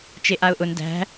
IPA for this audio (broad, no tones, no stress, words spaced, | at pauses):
t͡ʃeʔaʊ̯ʔʊn dæ̤